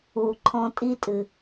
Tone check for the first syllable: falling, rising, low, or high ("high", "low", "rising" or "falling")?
low